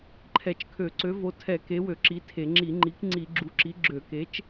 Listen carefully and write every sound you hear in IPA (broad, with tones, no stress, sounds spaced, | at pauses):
ǃʰ ɛ˧˩˧ t͡ʃ kʰ ø˧˩˧ ǀ ø˨˥ v o˨˥ tʰ ɛ˧˩˧ k e˨˥ w ø˧˩˧ ǁ i˨˥ tʰ e˧˩˧ ŋ͡ǁ i˧˩˧ ŋ͡ǃ i˨˥ k ŋ͡ǀ i˧˩˧ ɡ͡ǁ u˨˥ ǁ i˨˥ ɡ͡ǁ ø˧˩˧ k e˨˥ t͡ʃ